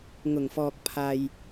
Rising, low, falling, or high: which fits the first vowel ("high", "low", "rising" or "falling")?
low